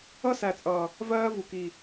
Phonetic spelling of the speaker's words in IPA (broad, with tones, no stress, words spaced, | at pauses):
ʌ˦sæ˨t͡sʼʌː˨ | vɜː˦vu˨ kiː˨